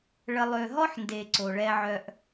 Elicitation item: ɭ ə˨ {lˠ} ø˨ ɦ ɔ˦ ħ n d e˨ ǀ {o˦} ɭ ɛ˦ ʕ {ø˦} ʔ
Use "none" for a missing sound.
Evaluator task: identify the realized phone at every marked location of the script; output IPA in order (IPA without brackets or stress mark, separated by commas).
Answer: lˠ, o˨, œ˦